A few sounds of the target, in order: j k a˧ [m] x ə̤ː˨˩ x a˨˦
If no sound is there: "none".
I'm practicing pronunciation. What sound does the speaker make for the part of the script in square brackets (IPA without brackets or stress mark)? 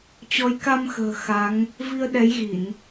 m